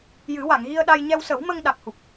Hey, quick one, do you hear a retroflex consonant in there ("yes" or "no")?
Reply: no